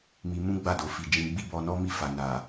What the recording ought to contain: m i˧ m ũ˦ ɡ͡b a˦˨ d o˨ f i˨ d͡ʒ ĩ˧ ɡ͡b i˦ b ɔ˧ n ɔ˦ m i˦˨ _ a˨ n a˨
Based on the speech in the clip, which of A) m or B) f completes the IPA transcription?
B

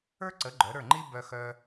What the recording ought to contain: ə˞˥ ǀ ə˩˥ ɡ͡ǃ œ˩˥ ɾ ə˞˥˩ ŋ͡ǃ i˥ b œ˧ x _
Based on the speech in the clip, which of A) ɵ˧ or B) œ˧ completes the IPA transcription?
B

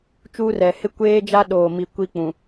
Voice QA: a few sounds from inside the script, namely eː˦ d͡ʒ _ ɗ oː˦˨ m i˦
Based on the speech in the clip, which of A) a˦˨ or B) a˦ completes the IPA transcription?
B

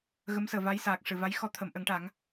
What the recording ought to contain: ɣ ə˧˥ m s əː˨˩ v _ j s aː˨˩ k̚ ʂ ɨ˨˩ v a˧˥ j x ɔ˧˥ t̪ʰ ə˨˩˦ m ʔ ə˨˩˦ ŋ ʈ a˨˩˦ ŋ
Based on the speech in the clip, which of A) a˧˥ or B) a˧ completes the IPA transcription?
A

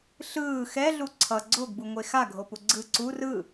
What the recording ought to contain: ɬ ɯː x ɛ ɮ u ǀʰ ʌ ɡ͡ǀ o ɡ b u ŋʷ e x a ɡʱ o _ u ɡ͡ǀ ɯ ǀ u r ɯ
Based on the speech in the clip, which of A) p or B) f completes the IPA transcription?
A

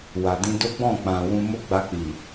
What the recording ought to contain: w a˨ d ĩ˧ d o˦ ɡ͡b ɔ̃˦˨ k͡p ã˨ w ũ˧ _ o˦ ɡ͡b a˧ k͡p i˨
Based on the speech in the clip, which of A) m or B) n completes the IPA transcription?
A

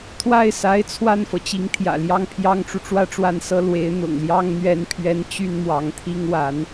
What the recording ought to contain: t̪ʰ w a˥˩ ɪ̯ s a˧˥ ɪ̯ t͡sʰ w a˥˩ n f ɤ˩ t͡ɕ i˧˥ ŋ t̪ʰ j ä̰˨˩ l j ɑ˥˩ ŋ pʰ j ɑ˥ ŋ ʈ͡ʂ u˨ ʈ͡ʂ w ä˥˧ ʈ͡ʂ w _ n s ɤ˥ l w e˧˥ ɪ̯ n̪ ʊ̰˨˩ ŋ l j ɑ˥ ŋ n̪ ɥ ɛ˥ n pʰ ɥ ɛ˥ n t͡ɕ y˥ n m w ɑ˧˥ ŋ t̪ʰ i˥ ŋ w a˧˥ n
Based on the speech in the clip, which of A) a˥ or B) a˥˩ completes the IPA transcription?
B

